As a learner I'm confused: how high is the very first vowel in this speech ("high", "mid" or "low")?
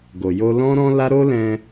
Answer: mid